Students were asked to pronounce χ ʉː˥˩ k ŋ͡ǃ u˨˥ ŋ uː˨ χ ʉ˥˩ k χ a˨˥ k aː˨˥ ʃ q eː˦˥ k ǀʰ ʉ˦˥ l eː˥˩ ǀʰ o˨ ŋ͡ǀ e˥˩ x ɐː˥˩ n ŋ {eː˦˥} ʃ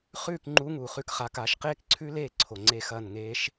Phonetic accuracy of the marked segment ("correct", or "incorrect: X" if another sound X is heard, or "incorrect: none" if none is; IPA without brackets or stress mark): correct